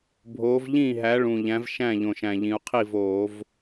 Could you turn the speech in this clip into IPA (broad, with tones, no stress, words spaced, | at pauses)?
bʱoː˨˥v ʎĩː˥˩ɦæ˨˥ ɭũ˨˩ʎæ̃˨˥vʃæ̃˥˩ʎõ˨˩ʃ æ̃˨˩ʎĩ˩˧u̯qʰi˥˩voː˧˩˧v